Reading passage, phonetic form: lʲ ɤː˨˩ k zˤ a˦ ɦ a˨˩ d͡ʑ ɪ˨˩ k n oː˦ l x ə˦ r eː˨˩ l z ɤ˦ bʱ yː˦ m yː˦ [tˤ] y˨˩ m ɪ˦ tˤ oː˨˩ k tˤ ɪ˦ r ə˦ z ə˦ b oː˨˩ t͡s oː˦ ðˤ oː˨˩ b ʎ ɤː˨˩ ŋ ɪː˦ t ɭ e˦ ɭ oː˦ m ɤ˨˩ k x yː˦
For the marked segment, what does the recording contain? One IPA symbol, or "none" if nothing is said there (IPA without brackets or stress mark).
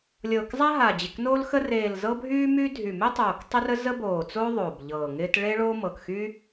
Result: dʱ